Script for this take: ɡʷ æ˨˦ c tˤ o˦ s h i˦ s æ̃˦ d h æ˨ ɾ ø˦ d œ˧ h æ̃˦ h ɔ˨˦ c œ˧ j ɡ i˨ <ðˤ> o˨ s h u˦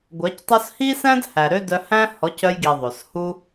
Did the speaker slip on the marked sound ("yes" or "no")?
no